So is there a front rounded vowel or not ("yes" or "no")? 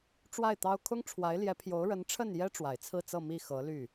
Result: yes